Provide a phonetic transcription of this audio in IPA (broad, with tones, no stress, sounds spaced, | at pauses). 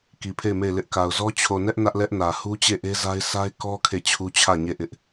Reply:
k i˨ pʰ e˦˨ ɪ̯ m e˦˨ ɪ̯ l ɪ˦ ʔ k a˨ ʊ̯ z ɔ˦ t͡ɕʰ o˨ n ɛ˦ ʔ n ä˦ ʔ l ɛ˦ ʔ n ä˨ h u˦ t͡ɕ e˦˨ ʔ e˦ z a˦ ɪ̯ s a˦ ɪ̯ k ɔ˦ kʰ e˦˨ t͡ɕʰ u˦ t͡ɕʰ ä˦˨ ɲ e˦˨ ʔ ɪ˦ ʔ